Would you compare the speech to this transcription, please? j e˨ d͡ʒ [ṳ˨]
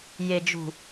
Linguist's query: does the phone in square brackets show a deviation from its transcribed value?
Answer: no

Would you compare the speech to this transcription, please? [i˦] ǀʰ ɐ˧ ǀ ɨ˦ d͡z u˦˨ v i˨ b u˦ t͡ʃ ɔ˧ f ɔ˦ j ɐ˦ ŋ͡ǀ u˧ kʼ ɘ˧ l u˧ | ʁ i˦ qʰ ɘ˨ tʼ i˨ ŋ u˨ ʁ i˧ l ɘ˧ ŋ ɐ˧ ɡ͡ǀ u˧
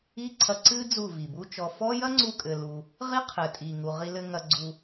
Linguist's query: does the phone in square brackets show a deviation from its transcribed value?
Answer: no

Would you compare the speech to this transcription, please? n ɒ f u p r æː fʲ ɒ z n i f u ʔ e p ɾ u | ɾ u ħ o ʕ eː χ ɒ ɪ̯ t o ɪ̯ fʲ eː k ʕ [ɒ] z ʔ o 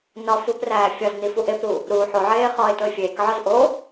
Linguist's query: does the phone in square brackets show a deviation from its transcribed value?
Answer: no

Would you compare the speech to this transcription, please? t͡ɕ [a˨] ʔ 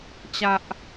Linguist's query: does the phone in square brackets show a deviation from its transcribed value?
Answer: yes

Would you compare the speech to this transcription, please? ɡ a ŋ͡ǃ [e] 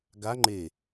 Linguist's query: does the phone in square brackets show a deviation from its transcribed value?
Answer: no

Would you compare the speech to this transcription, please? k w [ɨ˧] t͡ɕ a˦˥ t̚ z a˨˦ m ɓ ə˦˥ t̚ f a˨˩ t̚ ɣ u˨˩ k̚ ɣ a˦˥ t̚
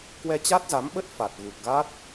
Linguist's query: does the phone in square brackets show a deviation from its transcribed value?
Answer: yes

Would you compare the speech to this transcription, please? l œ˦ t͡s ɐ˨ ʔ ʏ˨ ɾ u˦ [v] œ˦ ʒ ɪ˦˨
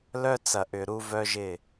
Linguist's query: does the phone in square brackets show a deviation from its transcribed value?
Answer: no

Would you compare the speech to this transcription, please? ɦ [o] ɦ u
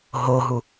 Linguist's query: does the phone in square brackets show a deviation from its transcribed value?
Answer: no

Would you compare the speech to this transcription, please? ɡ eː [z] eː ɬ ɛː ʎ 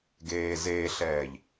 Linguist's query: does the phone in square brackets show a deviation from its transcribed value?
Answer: no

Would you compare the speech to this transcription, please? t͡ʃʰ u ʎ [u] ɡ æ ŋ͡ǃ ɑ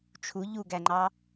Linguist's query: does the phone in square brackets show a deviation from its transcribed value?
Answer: no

